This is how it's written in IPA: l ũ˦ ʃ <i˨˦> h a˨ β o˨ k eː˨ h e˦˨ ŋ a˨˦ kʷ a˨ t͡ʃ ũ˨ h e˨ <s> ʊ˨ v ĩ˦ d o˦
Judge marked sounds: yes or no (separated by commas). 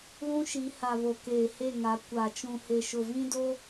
yes, no